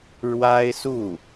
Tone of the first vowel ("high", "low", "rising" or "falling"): high